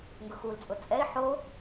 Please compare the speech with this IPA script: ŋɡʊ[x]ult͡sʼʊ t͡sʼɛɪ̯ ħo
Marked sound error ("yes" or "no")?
no